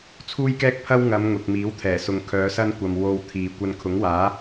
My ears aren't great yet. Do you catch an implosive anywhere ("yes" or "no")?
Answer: no